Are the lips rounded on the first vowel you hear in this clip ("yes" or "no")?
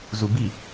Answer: yes